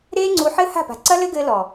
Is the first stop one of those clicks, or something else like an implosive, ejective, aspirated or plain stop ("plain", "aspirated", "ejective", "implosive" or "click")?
click